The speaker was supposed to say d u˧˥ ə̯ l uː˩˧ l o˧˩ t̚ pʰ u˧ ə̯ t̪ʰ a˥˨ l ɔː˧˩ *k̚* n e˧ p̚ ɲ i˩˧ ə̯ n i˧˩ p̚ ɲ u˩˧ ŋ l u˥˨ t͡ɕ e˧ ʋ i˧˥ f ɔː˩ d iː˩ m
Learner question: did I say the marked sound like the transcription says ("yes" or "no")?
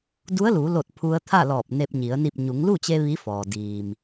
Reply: no